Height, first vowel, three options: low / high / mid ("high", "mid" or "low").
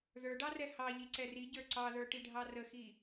mid